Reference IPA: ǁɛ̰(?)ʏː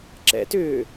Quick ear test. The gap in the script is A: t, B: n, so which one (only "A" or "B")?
A